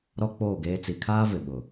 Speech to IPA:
ɾ ɔ˦ k͡p oː˦˨ ɡ eː˦ t͡s i˨ kʰ aː˦ v ɪ˨ ɓ ʊ˨

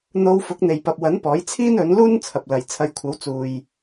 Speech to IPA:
n̪ o˧ w f ʊ˨˥ k̚ n̪ e˨ j p ɐ˨ p̚ w ɐ˨˥ n p ɔː˨˥ j t͡sʰ iː˥ n ɵ˨˥ n l uː˥ n t͡sʰ ɐ˨ p̚ l ɐ˨ j t͡sʰ ɐ˨˧ j kʷʰ ɐ˨˥ w t͡s uː˨ j

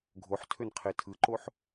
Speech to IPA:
ɡʱ o ħ tʰ ø n qʰ e tʰ ɯ ǃ o ħ

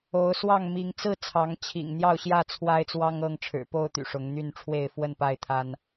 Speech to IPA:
o˨˦ ʊ̯ s w ɑ˥˨ ŋ m i˨˦ ŋ t͡s ɹ̩˥˨ t͡sʰ ɑ˨˦ ŋ t͡ɕʰ ḭ˨˩ ŋ n̪ j ɑ˥˨ ʊ̯ ɕ j ä˥˨ t͡sʰ w a˦ ɪ̯ t͡s w ɑ˦ ŋ ɤ˥˨ ŋ ʈ͡ʂʰ ɻ̩˨˩ p o˥˨ ʊ̯ t̪ y̰˨˩ ʂ ʊ˨˦ ŋ n̪ y˥˨ n ʈ͡ʂʰ w e˥˨ ɪ̯ f w ə˥˨ n p a˥˨ ɪ̯ t̪ʰ a˦ n

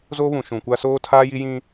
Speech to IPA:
z oː˦ β ũ˨ ʃ ũ˨ kʷ a˦ s oː˦ tʰ aː˦ j i˦ j ĩ˦

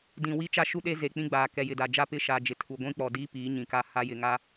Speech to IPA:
d ĩ˨ w i˦ t͡ʃ a˦ ʃ u˦ ɗ e˦ z e˨ k͡p ĩ˦ ɡ͡b aː˨ k ɛ˨ j ɪ˨ d a˨ d͡ʒ a˦ p ɪ˦ ʃ a˨ d͡ʒ ɪ˨ tʰ u˨ ɡʷ ĩ˦ k͡p ɔ˨ d iː˦ p iː˨˦ ɲ ĩ˨ k a˦ h a˦ j ɪ˨ ŋ a˦

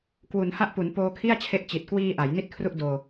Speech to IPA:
k w u˩˦ n h a˥˩ ʔ p u˩˦ n p oː˧ kʰ i˥˩ a̯ t͡ɕʰ e˦˥ ʔ t͡ɕ i˨˩ t̚ k w iː˧ ʔ a˩˦ j n i˥˩ t̚ kʰ r u˥˩ ʔ d oː˧

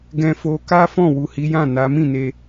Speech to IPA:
ɡ ɛ̃˧ f o˧ k a˦ f ɔ̃˦˨ w u˨ h i˨˦ j ã˦˨ n a˨˦ m ĩ˦˨ n e˧

